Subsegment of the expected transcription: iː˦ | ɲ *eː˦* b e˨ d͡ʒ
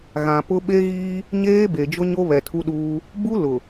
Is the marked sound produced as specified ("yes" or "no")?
yes